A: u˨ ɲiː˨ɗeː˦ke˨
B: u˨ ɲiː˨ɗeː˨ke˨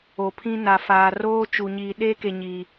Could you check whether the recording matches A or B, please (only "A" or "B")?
A